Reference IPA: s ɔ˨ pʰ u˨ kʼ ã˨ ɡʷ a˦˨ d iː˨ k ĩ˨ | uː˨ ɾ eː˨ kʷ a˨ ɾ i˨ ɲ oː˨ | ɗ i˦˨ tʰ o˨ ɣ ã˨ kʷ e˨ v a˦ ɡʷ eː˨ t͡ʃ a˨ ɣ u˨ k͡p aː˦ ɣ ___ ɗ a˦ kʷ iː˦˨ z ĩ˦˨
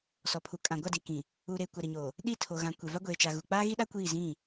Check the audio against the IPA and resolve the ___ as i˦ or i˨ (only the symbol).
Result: i˦